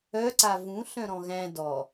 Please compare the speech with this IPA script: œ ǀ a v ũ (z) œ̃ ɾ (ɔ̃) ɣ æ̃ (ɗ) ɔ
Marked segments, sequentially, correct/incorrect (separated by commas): incorrect, correct, incorrect